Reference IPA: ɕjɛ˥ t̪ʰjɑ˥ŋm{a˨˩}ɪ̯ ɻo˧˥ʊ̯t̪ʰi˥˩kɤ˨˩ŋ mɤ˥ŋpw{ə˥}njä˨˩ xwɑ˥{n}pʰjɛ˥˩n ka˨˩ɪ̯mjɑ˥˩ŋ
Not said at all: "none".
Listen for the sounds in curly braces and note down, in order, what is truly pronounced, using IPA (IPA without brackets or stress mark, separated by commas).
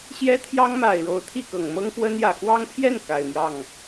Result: a˨˩, ə˥, ŋ